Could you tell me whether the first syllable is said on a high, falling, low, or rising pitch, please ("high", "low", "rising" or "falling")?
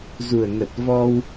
low